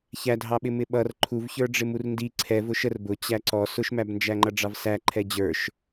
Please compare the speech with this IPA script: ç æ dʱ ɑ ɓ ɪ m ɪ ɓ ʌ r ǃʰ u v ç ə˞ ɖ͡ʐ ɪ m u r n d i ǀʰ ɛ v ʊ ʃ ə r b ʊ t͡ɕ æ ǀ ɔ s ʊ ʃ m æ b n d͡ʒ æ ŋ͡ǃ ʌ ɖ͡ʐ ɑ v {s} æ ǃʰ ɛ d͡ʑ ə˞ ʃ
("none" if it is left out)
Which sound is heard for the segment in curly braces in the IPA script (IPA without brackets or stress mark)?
s